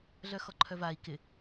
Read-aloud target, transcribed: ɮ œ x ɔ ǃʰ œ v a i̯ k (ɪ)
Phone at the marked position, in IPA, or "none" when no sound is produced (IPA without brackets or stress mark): ɪ